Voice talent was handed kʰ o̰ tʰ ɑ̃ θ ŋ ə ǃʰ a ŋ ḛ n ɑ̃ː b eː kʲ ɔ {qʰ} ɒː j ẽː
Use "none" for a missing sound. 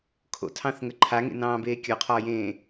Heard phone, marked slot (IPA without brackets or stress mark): qʰ